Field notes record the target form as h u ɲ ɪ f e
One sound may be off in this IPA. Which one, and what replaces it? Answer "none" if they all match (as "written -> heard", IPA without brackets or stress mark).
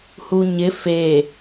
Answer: none